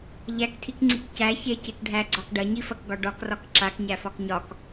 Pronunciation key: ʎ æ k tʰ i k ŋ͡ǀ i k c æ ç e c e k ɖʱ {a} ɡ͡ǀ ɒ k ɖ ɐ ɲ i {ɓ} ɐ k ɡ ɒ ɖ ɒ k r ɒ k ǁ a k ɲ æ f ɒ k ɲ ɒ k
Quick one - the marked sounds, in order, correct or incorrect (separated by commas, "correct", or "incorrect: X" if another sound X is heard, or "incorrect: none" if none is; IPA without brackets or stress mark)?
incorrect: æ, incorrect: f